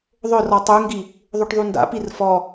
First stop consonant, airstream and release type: plain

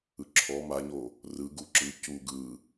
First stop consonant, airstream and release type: click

